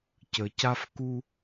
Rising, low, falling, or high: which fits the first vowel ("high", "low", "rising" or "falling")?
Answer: low